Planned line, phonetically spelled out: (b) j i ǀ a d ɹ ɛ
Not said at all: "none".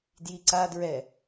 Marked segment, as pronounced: d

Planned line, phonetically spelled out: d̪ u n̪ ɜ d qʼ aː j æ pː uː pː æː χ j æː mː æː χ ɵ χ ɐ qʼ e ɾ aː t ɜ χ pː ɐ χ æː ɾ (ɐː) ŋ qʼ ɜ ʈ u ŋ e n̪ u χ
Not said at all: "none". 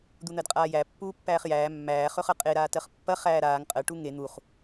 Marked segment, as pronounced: aː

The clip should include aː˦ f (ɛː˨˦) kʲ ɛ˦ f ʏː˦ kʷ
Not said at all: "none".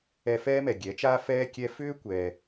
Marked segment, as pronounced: ɛː˦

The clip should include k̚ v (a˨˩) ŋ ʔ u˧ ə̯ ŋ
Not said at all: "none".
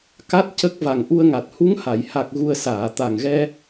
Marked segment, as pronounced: a˨˩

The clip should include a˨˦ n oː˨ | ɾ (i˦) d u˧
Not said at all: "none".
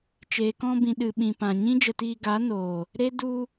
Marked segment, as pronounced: e˦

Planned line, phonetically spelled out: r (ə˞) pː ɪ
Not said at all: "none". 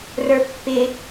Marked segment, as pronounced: ə˞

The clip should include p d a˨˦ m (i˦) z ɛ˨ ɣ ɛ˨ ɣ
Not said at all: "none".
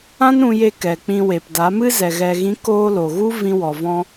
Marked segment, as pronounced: ɨ˦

